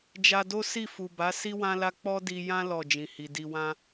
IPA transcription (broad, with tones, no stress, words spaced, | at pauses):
d͡ʒa˧do˦ si˦˨fu˨ba˨˦ si˦wã˦la˦ k͡pɔ˦di˧jã˦ lɔ˦˨d͡ʒĩ˨hi˨ di˨wã˧